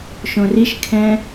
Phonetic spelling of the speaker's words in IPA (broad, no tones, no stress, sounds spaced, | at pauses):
ʃ õ r i ʃ kʰ ɛ̃